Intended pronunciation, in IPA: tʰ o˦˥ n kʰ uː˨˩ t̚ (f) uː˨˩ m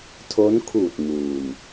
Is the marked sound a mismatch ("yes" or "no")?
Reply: yes